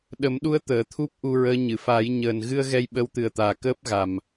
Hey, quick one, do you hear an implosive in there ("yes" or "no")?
yes